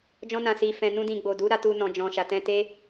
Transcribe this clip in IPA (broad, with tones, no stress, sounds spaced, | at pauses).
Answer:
d͡ʒ ɔ̃˧ n ã˨ s i˨ f ɛ̃˨ n ũ˧ d ĩ˨ ɡ͡b o˨ d u˨˦ ɾ a˧ t u˧ n ɔ̃˨ d͡ʒ ɔ̃˨ ʃ a˨ t ɛ̃˧ t e˦